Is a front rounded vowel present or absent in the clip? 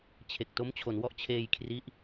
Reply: absent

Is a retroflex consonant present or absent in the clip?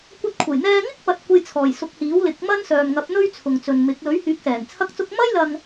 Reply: absent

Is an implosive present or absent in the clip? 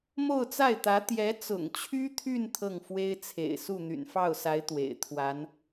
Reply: absent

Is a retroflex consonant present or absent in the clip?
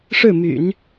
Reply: present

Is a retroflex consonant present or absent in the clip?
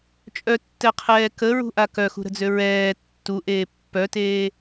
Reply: absent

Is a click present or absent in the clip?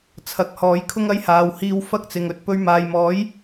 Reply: absent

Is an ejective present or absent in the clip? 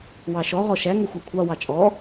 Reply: present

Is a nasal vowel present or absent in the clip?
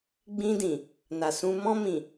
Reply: present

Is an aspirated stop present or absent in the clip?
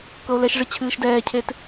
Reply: present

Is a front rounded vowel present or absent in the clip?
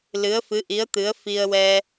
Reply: absent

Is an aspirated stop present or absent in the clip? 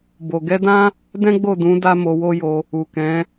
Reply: absent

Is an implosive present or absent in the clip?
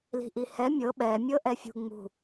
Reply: present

